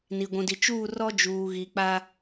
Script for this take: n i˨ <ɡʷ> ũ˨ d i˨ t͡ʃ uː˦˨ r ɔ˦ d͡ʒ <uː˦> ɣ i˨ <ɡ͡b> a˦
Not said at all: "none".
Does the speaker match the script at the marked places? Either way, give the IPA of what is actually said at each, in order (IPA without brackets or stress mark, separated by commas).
ɡʷ, uː˨, k͡p